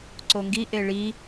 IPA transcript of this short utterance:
ǀ o ŋ ɡ i ʔ e ɭ i

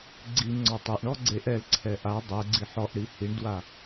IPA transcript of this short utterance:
ɡ͡ǀ i ŋ͡ǀ ɔ tˤ ɛ ʔ ɳ ɔ ɡ͡ǀ e ʔ ɛ l ǀʰ ɛ ʔ a dˤ ɛ ɡ͡ǀ i ħ ɔ ʔ ɽ i h i ɳ d w a

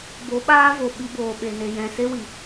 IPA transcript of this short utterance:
b o˨˦ ɓ aː˦ v o˨ ɓ i˧ b oː˨ ɓ e˨ n e˨ j ɛ̃˨ s e˦ w i˨

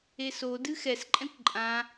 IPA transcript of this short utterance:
e s o d ɨ x ɛ s ǃʼ ɛ̃ kʷ ǃʼ ã

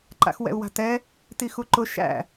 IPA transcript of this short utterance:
ǃ a̰ x w ɛ̰ u̯ w a̤ t ɛ | t i x u ǃ ʊ ʃ æ̰

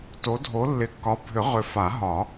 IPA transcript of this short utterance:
t o˨˦ dʱ o˨˦ lː ɪ˨˩˦ kː ɒ˨˦ bʱ ʏ˨˩˦ ʁ ʏ˨˦ f a˨˩˦ ɦ ɒ˨˩˦

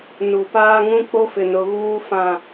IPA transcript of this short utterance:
n u˨ p aː˦ ŋ ũ˦ k͡p o˦ f ɪ˨ n ʊ˨ ɣ uː˦ f ã˦˨

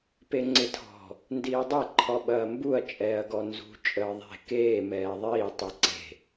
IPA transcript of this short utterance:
p e ŋ͡ǀ ɪ tʰ ɔ̤ | n d iː dˤ e ǃʰ ɔ ɓ ɐː m b u ɐ̯ t͡ʃʼ ɛː ɐ̯ ɡ ɔ n z ṳ t͡ʃʼ əː ðˤ e̤ k eː m ɛː ðˤ iː tˤ i ǀ e̤

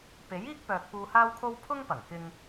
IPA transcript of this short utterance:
p e˨˥ j iː˥ k̚ p œː˨ k̚ p uː˨ h aː˧ w kʰ o˧ w pʰ ʊ˥ ŋ p ɐ˨˩ ŋ k ɪ˨ ŋ

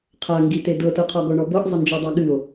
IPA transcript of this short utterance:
qʰ a ŋ ɡ i t e d ɤ t ɤ qʰ ɔ ɡ ɔ ɳ ɔ b ɤ ʔ zˤ ə n d͡ʒ ɔ dˤ ɑ ɠ ɨ o̯

